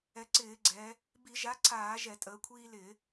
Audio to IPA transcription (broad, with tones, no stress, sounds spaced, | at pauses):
ɛ˩˧ ǀ ɪː˧˩˧ ɡ͡ǀ ɛː˩˧ | b i˧˩˧ ʒ a˨˥ ǀʰ aː˧˩˧ ʒ ɛ˧˩˧ tʼ əː˩˧ kʷʰ iː˦ l ɪː˧˩˧